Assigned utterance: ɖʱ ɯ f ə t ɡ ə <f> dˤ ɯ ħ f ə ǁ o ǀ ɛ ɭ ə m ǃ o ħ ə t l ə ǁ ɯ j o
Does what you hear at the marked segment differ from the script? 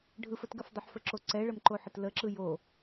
no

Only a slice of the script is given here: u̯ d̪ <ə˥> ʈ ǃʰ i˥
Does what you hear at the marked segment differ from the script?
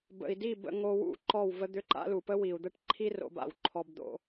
no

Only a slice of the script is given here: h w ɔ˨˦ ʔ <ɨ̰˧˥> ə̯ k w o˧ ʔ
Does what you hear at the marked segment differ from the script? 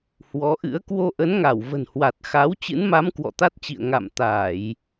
no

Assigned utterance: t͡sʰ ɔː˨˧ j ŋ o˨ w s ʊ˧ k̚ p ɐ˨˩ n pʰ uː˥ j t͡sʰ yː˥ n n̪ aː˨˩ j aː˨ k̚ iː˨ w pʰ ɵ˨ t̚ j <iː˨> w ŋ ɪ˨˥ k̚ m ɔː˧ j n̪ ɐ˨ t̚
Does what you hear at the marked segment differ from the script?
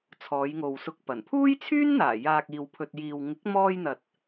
no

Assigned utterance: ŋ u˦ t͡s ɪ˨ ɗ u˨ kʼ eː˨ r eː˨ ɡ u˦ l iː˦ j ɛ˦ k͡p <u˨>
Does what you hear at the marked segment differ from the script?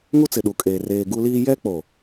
yes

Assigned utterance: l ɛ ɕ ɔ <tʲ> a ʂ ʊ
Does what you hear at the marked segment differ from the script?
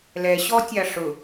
no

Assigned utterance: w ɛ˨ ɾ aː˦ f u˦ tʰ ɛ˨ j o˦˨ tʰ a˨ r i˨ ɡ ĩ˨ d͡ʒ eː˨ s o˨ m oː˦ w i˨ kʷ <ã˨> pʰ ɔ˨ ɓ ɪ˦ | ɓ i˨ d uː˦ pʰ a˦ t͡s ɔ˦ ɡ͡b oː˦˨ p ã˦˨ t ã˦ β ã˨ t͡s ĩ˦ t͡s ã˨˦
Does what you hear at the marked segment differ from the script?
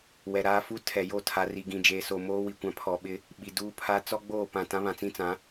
yes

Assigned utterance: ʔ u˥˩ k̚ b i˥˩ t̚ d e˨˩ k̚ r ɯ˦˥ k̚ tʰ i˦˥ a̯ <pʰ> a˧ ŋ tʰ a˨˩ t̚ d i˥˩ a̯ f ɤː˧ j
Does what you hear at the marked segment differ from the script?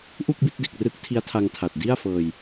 yes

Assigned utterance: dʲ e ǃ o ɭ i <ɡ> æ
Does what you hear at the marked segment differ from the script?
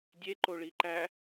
yes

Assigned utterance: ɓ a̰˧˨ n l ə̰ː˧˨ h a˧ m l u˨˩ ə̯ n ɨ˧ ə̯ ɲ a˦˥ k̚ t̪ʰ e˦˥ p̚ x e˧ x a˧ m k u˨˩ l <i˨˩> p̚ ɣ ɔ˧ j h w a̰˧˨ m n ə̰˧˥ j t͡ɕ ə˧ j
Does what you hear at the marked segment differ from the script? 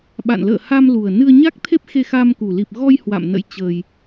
no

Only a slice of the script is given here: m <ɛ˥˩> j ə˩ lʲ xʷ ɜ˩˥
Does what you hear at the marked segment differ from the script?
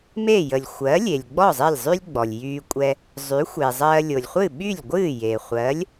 yes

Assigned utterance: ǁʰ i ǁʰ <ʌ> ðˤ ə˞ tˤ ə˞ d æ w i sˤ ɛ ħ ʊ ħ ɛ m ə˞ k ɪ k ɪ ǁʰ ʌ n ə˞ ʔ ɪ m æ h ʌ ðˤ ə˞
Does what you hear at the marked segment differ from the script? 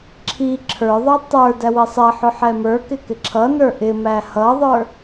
yes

